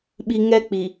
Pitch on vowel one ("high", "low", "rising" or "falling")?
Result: low